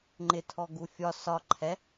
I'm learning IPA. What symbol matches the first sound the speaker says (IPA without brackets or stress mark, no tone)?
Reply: ŋ͡ǃ